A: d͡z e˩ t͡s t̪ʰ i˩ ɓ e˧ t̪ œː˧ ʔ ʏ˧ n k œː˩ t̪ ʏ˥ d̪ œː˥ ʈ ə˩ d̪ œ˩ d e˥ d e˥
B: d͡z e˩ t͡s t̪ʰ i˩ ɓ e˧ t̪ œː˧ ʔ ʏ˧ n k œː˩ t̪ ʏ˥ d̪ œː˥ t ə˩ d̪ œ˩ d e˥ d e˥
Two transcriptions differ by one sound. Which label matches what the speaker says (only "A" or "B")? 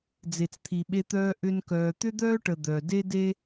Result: A